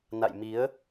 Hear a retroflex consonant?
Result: no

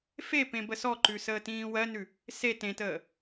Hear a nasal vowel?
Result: yes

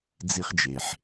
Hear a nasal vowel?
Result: no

